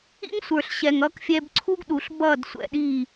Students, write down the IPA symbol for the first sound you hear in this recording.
ḭ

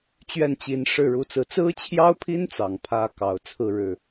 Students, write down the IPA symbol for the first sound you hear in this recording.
t͡ɕ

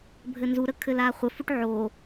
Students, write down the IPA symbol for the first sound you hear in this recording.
bʱ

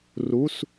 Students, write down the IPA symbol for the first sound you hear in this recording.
r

